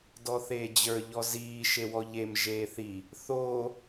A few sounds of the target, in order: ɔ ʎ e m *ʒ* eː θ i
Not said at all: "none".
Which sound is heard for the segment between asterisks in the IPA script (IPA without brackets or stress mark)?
ʒ